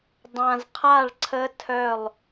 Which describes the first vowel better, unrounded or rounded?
unrounded